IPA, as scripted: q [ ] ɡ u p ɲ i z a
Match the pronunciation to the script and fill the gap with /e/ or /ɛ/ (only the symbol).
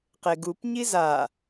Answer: e